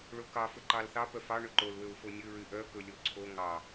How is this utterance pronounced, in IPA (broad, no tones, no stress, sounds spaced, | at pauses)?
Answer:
ɭ o k ɑ f ɵ ǃ ɑ l θ ɑ p œ f ɑ ɳ ɵ ǃ o l w ø w f o nʲ ɵ ɹ y ʔ œ k ɵ lʲ o ǀʰ o ŋ ɑ